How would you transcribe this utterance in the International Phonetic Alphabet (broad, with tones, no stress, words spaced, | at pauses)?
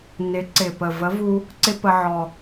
nɪ˨˥ǀɪ˨˩pə˨˩ və˨˥vu˧ | ǀɪ˥pə˧ʕɔ˨˩